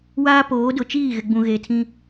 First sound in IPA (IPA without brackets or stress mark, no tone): w